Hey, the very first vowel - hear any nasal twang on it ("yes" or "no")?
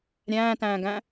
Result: yes